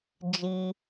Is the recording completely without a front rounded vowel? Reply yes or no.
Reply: yes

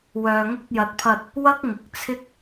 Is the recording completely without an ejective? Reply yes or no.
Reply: yes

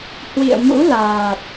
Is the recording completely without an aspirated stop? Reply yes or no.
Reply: yes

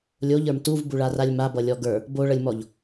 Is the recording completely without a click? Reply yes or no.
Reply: yes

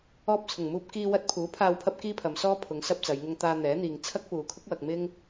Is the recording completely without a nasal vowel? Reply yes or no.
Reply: yes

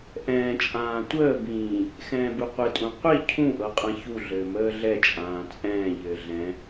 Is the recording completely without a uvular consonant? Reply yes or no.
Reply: no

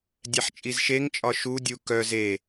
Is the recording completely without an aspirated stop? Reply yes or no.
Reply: yes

